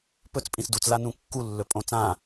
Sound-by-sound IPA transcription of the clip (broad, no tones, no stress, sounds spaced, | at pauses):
p ɵ t͡s pʼ ĩ s d u t͡s l a n ũ kː u lː ɵ pʼ õ t͡s ã